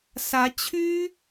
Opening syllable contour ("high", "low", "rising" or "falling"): rising